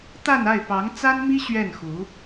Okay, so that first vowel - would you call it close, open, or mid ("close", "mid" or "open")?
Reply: open